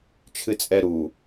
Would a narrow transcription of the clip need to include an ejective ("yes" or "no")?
yes